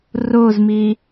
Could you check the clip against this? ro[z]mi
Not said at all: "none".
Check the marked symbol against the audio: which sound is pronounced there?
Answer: z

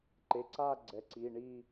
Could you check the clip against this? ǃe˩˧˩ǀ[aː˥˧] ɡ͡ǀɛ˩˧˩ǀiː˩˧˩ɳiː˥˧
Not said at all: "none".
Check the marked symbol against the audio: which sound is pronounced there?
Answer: aː˥˧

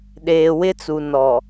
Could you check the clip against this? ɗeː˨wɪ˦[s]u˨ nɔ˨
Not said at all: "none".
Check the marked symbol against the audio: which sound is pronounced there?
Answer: t͡s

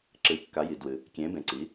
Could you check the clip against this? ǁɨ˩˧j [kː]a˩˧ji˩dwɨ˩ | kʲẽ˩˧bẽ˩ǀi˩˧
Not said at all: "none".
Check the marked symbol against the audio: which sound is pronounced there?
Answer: kː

